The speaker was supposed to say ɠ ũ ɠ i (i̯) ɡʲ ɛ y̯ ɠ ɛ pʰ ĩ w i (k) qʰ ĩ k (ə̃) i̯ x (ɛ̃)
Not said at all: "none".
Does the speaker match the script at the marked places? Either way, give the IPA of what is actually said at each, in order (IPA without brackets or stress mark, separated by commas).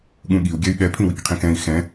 u̯, k, ɛ̃, ɛ̃